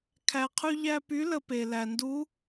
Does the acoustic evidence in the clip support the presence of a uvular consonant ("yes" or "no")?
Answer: yes